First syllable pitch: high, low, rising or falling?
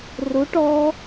rising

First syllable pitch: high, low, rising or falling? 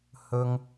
high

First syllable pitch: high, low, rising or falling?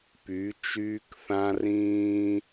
rising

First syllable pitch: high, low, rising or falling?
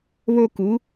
high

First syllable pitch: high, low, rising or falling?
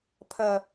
low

